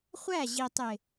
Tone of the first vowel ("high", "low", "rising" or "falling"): falling